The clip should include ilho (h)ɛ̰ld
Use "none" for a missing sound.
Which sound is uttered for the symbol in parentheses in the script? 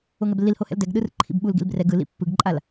h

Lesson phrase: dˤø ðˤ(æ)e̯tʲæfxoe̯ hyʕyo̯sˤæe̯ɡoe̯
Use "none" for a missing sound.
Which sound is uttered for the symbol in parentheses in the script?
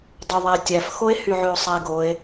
æ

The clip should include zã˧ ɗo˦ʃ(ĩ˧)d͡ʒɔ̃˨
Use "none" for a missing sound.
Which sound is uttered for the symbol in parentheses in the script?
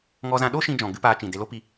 ĩ˧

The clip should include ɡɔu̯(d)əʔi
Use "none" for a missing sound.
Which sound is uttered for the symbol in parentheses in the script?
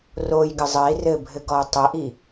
tˤ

